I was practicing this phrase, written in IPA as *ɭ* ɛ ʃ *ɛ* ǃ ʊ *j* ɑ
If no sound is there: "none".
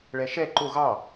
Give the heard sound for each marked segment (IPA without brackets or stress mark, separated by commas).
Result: ɭ, ɛ, ɣ